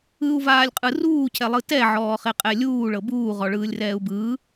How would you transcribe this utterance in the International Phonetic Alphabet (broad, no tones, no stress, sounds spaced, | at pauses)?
ɯ u̯ v aː lʲ qʼ ɯ r uː cʰ ɛ lˠ ɯ t ɛ ʕ ɔː χ e qʼ ɛ lʲ uː ɭ ɤ b uː ʁ ɔ ɭ ɯː lʲ r ɛː u̯ b ɯː